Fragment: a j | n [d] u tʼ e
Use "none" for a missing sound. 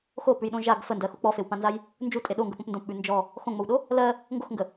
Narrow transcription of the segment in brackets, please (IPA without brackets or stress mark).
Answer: d͡ʒ